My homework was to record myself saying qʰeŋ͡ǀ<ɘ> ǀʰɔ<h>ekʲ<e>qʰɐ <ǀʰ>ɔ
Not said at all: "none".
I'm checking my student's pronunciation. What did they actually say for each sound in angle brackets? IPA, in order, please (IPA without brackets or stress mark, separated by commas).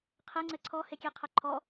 ɘ, h, e, ǃʰ